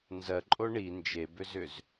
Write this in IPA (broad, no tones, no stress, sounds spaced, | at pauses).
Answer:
n z ɜ ǃʼ o ɳ i n d͡ʒ e b ʏ z ʏ z